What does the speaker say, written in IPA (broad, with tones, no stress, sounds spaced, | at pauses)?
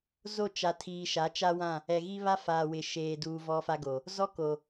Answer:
z o˦˨ t͡ʃ a˨ tʰ iː˨ ʃ a˨˦ t͡ʃ a˦ w ã˦˨ | ɛ˨ ɣ i˦ β a˦ f aː˨ w ɪ˨ ʃ eː˨ d uː˨ v ɔ˦ f a˦ ɡ o˨ | z ɔ˦ k o˨